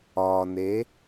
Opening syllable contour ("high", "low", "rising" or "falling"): low